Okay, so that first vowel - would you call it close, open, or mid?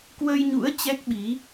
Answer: mid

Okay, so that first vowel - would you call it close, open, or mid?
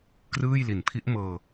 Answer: close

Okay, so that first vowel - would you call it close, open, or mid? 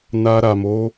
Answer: open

